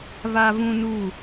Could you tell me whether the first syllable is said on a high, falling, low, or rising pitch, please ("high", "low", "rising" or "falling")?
high